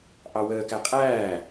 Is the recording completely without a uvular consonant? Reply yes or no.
no